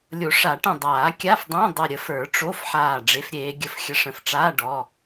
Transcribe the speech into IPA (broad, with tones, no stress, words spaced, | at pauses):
lʲo˨˩˦ʂa˨˩˦ʈə̃˧˩ dˤaː˨˩˦kʲa˧˥˧fdˤə̃ː˧˥˧ dˤə˧˩ɾʲə˨˩˦f ə˞˨˩˦ʈ͡ʂo˧˥˧fħaː˧˩ ɖ͡ʐe˨˦fɾʲeː˨˦ ɡʲə˧˩fxʲə˧˥˧ʂ ə̃˧˩fʈ͡ʂaː˧˥˧ɖɔ˩˧˩